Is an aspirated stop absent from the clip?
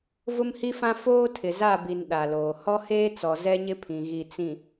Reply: no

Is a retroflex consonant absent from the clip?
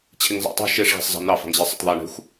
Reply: no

